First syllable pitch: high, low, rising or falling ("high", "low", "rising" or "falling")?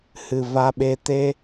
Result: low